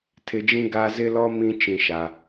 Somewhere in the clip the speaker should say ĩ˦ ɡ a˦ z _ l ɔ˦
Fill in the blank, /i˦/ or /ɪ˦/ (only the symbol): ɪ˦